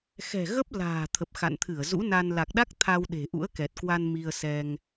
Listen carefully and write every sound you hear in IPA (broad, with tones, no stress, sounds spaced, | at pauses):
x ɛ̤˨˩ ɣ ə˦˥ p̚ l a̤ː˨˩ t̪ʰ ə˨˩ p̚ x a̰˧˨ n t̪ʰ ɨ˧˩ ə̯ z ṵ˧˥ n a˧ n l a˨˩ k̚ ɗ a˦˥ k̚ t̪ʰ a˧ w ɗ e̤˨˩ ʔ ṵ˧˥ ə̯ k ɛ˨˩ t̚ k w a˧ n m i˧ ə̯ s ɛ˧ ŋ